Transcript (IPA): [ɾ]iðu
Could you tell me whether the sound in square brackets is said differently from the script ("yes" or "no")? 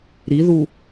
no